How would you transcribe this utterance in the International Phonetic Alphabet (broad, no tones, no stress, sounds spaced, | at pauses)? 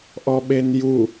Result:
ʔ ɔ ɓ e n j u